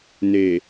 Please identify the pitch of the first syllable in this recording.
low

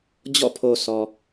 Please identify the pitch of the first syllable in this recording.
falling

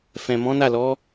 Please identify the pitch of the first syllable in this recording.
low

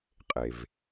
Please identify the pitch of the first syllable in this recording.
low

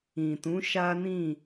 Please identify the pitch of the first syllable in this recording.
low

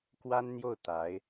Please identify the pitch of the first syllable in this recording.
high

